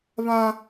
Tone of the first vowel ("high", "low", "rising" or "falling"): high